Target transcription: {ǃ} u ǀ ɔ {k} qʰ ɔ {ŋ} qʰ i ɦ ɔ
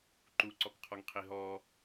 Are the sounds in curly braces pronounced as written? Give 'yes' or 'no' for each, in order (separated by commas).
yes, yes, yes